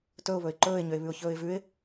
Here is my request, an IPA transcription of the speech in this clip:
t ɵ ʊ̯ β ɵ ɪ̯ ǃ ɵː ɪ̯ ɲ ø ɪ̯ β ʉ ʊ̯ ç ɵː ɪ̯ v ʉ ɪ̯

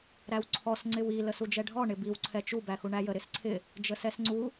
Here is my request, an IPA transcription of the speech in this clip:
ɾ æ w ǀʰ ɔ s ŋ͡ǀ ɪ w i l ə s u d͡ʒ ɛ ɖʱ ɔ ɳ ɪ b i w ǀʰ ɛ t͡ʃ u b æ x u ɳ æ j ə ɾ ɪ s ǀʰ ɪ | d͡ʒ ə s ɛ s ŋ͡ǀ u

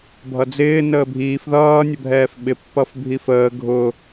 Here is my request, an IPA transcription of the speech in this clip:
bʱ ʌ d͡z ɪː n əː bʱ iː f ð ʌː nʲ ə bʱ ɛː f ɓ ɪ pː ʌ f bʱ i f əː ɡʱ ʊ

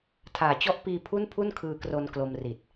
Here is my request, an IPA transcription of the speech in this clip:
tʰ aː˨˩ t͡ɕ ɔ˦˥ ʔ p iː˧ pʰ u˥˩ n pʰ u˥˩ n kʰ ɯː˧ k r o˧ n k l o˧ m r i˨˩ t̚

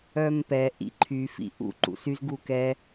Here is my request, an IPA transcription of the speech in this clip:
œ m p ɛ ʔ ḭ ǃʰ y f ḭ ʔ ṵ ǃ ṵ s y z ɡ u k ɛ

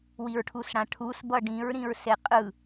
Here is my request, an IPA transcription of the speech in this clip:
w i ɹ ʈʰ u s ɽ ã ʈʰ u s b ʌ ɖ ĩ ɹ ɾ ĩ ɹ s e qʼ ɯ

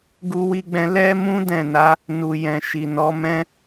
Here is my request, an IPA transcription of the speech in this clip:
ɡ u˧ w i˧ ɡ͡b ɛ̃˧ l ɛ˦ m ũ˦ d ɛ̃˦˨ n a˨˦ | n u˨ j ɛ̃˨ ʃ i˨ n ɔ˨˦ m ɛ̃˦

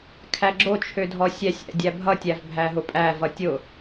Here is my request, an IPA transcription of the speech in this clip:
kʰ æ ɡ͡ǁ o t͡ʃʰ ø dʱ ɔ sʲ æ sʲ æ̰ dʲ æ bʱ ʌ tʲ æ v bʱ æ ɦ ʊ pʼ æ v ʌ tʲ ʊ

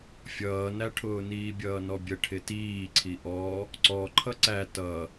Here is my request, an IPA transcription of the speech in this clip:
fʲ ʌː n æ ʈʰ ʊː n iː bʲ ʌː n ɔ bʲ ə ʈʰ ɪ t iː ǀʰ i ʔ ɔ | ǀ ɔ ǃʰ ʌ ǀ æ t ʌ

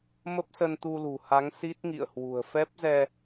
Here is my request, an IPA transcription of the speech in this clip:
m ə˦˥ p̚ s ə˧ n t̪ u˧ l ṳ˨˩ h a˨˦ ŋ s i˦˥ t̚ ŋ ḭ˧˨ ə̯ h w ṳ˨˩ ə̯ f ɛ˦˥ p̚ z ɛ˧

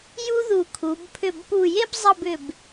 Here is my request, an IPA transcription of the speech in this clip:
j u˥ ð u˧˩ kʰ u˩˧ b pʰ ʏ˧˩ b p u˧˩ j e˥ b zˤ ʌ˥˧ b ʏ˧˩ b

